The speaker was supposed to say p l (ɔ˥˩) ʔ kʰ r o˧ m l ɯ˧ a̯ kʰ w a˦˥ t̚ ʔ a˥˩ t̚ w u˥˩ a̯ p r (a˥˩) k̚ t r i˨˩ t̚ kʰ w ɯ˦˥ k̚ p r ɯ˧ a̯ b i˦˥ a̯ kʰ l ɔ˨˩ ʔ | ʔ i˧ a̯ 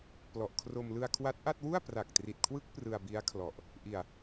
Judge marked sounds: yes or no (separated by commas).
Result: no, no